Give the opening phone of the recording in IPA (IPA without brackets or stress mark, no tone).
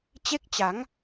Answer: t͡ɕ